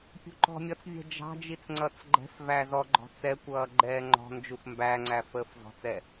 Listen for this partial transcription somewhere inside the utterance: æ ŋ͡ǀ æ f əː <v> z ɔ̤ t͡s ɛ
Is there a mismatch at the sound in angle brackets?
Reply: yes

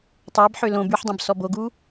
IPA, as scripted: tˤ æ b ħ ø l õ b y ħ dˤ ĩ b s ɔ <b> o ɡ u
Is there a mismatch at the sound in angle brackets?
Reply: no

